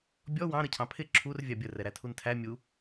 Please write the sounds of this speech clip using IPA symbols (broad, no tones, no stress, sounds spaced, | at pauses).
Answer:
bʲ ɔ w ɑ̃ ɾ ə cʰ ɑ̃ pʰ ɪ ǁʰ u r vʲ ɑ bʲ ə r ɛ ɾ æ tʰ u n tʰ æ mʲ u